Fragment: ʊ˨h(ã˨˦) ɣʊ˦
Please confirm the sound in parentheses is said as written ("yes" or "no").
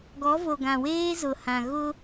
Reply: no